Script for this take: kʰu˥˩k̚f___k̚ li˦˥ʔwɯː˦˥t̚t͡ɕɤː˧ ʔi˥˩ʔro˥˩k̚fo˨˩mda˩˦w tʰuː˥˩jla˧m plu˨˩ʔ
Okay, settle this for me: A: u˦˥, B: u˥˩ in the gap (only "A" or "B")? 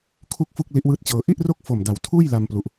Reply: B